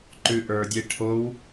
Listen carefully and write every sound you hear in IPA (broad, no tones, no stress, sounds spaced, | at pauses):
ǃ ʉ ʔ ə˞ dʲ e ʈʰ o w